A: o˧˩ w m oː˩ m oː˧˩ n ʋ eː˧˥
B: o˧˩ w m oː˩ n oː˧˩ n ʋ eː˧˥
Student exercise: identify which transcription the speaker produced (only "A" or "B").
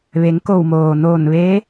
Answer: B